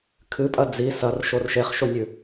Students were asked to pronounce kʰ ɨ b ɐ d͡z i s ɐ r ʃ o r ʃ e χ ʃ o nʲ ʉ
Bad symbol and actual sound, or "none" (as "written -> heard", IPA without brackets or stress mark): b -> pʼ